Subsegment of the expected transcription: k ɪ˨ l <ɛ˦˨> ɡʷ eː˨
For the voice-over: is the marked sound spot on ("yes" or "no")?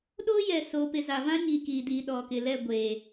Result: yes